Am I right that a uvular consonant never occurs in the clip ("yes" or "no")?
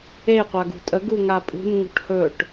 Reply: no